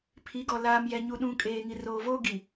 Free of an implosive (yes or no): no